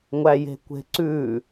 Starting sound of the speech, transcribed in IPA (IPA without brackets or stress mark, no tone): ŋʷ